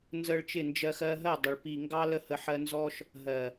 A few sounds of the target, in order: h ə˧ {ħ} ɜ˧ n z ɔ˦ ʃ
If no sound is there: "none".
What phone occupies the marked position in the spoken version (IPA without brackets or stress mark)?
ħ